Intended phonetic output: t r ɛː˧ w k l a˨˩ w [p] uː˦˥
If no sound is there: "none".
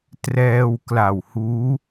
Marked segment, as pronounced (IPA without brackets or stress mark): h